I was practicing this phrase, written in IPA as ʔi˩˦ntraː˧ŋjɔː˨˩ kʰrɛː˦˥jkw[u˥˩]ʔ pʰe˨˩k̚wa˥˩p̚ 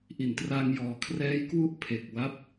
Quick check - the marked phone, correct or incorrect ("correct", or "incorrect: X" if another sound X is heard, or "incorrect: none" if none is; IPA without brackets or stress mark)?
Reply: correct